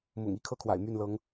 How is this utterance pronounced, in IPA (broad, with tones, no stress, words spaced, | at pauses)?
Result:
mʊ̰˨˩ŋ i˥˨kʰɤ˥˨kʰwa̰˨˩ɪ̯ my˥˨nlɤ˨˦ŋ